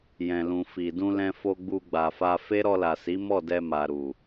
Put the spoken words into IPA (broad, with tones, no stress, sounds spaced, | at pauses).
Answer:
j ɛ̃˨ l ũ˨ f i˨ d ũ˧ l ɛ̃˧ f o˧ ɡ͡b u˧ ɡ͡b a˨ f a˧ f e˦ ɾ ɔ˧ l a˨ s i˨˦ m ɔ˦˨ d ɛ˧ m a˨ ɾ u˨